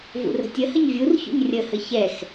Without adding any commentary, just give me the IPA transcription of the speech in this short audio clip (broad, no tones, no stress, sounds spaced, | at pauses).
v ṵ r ə̤ tʲ ə h ə ɲ vʲ u r ç ṵ ɲ rʲ ə h ə ç ɛ x